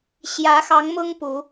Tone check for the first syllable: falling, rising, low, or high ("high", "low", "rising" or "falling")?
rising